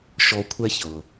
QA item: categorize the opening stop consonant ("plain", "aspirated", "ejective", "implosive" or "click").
aspirated